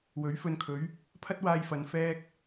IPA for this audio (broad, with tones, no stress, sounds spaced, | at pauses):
w ɵ˨˥ ɥ f ɵ˧ n kʰ ɵ˨˥ ɥ | pʰ ɐ˥ t̚ w aː˧ j f ɐ˨ n f ɛː˧ k̚